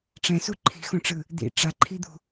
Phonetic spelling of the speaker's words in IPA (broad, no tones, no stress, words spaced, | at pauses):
ʈ͡ʂɛ̃su ǃʰi̤xõʈ͡ʂɯ | d̪ḭ ʈ͡ʂaǃʰid̪ṳ